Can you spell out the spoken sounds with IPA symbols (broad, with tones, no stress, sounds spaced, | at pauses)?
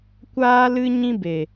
kʷ aː˦ l ɨ˦ ɲ ĩ˦ b e˨